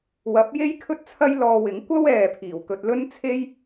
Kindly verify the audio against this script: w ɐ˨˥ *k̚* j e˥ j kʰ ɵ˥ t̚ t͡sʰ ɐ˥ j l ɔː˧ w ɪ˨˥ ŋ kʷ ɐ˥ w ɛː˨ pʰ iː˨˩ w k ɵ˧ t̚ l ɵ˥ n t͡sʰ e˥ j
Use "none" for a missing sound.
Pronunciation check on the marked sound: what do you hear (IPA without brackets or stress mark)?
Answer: p̚